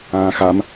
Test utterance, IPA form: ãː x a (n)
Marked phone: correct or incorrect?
incorrect